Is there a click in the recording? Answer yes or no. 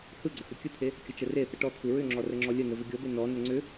yes